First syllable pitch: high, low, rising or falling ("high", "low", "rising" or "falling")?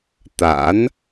rising